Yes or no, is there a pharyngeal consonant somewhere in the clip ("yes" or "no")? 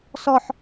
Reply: yes